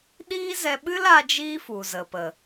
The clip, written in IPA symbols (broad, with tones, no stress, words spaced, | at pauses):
ɗiː˦zɛ˧ɓɨ˦la˧ d͡ʒiː˦fu˨zə˨pə˨